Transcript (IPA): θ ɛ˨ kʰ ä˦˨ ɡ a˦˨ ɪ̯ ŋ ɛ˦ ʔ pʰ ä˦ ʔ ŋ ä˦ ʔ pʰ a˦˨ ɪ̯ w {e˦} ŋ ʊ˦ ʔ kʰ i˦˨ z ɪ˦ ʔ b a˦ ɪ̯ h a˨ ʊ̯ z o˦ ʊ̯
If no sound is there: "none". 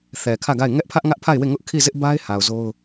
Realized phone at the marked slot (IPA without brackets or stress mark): e˦˨